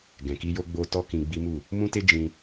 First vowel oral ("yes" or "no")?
no